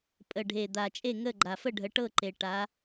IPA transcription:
pʼ ə˨˩ ɖʱ e˨˩ d̪ a˨˩ t͡ʃʼ e˥˨ ŋ ə˥˨ ɡ͡ǃ a˨˩ f ə˥˨ ɖʱ ə˨˦ ʈ ɤ˥˨ ǃ e˨˩ ʈ a˨˦

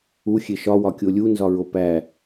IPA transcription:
u xʲ e ʃ ɒ w ɒ kʲ o lʲ u n z ɒ ɹ o p æ

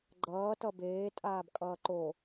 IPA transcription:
ɡ͡ǃ ʌː t ʌ b eː tʼ aː b kʼ ʌː ǃ o

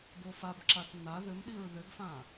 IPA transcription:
b o f a b ǁ a t n a ð ʏ m ɗ i ɹ ð ʏ ɡ f ã

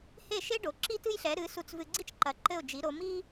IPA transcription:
h e˥˩ ʃ e˥ ɖ o˩ ǁ i˥ t ɨ˥ j ɬ ɛ˩˥ ɾ ɨ˩˥ s u˧ t͡s v ɨ˧ ɡ͡ǀ i˥ t͡ʃ ǃ ɐ˩˥ ǃ ɘ˥˩ ʊ̯ d͡ʒ i˩˥ ɾ o˩˥ m i˥

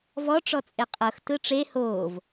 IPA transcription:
v ɔ ʈ͡ʂ ɔ t͡sʼ e qʼ ɤ x t ɯ ʈ͡ʂ e h oː v

